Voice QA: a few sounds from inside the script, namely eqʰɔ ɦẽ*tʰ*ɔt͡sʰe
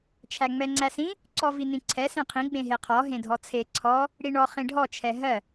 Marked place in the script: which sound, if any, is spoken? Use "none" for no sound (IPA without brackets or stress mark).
dʱ